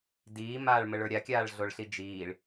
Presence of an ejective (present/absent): absent